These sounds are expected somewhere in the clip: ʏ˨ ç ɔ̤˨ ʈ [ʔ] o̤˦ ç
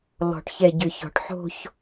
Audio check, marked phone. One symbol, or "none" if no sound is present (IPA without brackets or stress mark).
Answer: ħ